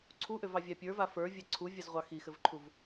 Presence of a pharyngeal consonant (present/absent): absent